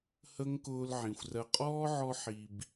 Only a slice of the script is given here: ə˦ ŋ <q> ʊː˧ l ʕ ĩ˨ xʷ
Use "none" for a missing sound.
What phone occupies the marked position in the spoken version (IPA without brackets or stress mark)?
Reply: k